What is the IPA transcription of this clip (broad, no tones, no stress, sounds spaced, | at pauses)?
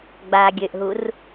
ɡ͡b aː ɡʲ ø ʔ ɦ u r